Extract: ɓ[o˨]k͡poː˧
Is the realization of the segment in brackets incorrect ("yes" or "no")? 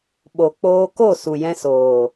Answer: no